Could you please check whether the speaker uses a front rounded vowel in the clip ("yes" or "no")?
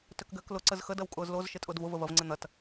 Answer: yes